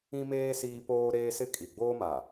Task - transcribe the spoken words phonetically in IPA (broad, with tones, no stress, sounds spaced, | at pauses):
ĩ˦ m eː˦ s iː˦ p oː˦ ɾ eː˦ s ɪ˦ kʼ i˨ ɡ͡b oː˦ m a˨